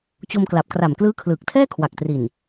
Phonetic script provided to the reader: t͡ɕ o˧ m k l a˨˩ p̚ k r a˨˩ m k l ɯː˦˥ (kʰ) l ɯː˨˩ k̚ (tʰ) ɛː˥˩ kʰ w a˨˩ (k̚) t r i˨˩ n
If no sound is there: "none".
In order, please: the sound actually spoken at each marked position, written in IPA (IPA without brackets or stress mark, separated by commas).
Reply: kʰ, tʰ, k̚